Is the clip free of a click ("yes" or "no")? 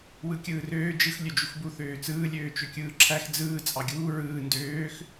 no